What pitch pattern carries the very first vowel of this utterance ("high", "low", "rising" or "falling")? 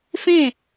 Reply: falling